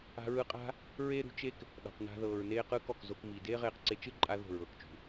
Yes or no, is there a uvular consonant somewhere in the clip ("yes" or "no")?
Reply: yes